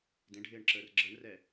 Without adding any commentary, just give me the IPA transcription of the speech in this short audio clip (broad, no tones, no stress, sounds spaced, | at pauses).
d ẽ ɖʱ ɪː ɳ ǁ əː r ɡ͡ǁ ə ɳ r ɛ